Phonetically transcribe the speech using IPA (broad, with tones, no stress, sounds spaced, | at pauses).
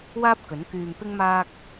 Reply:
w aː˥ p̚ k ɵ˨˥ n k yː˧ m p ɪ˥ ŋ m aː˥ k̚